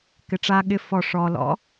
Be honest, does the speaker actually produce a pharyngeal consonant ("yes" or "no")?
no